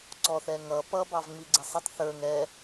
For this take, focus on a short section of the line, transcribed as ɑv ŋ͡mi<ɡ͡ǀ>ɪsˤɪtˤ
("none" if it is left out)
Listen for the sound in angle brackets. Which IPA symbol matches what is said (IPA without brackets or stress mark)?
ɡ͡ǀ